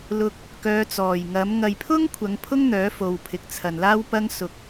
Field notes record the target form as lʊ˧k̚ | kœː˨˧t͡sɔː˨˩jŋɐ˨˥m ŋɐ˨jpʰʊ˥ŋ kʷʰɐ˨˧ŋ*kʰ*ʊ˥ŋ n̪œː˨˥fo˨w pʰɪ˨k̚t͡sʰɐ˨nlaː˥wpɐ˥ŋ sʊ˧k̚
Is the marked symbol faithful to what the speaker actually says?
no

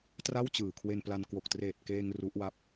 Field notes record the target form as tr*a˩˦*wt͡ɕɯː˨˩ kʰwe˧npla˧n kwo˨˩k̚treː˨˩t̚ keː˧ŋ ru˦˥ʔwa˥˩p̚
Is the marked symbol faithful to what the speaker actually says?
no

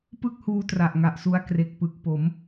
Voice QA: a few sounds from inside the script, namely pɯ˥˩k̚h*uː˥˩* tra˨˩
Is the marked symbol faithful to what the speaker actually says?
no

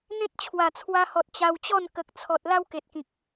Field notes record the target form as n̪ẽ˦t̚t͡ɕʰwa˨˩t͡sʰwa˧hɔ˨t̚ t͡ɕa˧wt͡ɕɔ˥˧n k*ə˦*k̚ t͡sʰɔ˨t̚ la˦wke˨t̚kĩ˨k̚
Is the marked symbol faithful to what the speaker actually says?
no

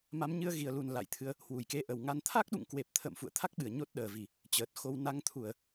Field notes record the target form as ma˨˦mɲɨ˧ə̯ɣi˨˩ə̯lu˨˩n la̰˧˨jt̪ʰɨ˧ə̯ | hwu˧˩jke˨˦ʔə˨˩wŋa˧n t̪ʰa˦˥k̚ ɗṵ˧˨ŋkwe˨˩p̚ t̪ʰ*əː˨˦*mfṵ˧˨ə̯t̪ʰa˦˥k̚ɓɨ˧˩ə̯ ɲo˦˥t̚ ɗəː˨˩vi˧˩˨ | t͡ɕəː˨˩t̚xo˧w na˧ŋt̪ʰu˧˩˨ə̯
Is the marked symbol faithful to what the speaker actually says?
no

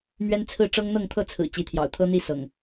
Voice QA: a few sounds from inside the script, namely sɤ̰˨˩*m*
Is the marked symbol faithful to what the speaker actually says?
no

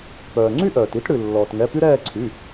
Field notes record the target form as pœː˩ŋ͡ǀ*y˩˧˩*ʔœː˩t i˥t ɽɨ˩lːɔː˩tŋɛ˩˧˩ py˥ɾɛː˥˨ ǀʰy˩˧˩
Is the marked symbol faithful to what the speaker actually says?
no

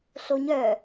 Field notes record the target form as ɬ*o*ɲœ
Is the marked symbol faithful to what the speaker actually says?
yes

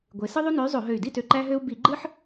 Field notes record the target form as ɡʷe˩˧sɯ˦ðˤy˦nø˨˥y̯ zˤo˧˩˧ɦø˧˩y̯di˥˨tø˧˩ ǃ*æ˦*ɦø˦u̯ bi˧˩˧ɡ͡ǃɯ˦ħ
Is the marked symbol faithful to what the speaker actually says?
yes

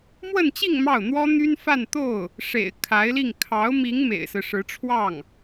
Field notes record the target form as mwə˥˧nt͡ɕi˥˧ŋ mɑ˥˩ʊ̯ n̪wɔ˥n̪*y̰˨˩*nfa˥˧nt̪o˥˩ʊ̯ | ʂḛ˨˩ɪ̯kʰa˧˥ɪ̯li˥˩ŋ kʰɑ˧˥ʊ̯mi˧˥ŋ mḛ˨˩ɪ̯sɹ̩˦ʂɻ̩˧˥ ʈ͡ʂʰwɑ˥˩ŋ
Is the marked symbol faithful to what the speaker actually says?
no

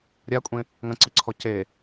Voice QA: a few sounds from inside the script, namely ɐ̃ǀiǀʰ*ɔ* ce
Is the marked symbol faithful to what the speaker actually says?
yes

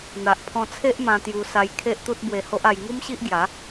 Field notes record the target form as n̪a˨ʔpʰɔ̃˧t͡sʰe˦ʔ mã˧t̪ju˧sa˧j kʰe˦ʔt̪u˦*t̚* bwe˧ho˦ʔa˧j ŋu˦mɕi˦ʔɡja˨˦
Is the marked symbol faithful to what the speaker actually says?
yes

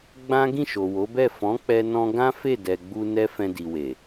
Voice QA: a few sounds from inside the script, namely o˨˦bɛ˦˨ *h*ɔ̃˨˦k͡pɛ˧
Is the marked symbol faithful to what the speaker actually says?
no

